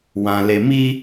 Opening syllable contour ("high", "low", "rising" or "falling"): low